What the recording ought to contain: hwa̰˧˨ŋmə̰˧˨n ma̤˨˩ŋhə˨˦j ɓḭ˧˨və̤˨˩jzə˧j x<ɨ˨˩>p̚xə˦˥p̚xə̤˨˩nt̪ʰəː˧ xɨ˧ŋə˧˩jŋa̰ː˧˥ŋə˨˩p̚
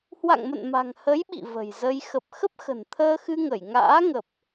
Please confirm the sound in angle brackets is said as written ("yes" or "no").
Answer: no